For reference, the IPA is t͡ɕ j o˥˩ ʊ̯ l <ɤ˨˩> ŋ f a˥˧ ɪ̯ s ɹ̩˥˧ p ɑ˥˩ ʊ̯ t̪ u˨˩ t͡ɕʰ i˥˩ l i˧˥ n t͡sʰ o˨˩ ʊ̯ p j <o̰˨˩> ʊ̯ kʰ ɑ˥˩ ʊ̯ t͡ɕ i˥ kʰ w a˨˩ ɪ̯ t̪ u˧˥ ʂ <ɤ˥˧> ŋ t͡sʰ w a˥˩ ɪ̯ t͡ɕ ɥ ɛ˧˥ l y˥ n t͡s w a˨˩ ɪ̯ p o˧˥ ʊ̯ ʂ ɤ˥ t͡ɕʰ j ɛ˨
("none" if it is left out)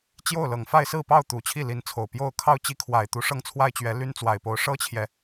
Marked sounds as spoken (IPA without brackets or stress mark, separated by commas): ɤ˨˩, o˥˧, ɤ˥˧